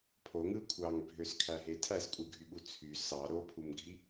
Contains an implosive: yes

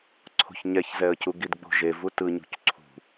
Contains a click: yes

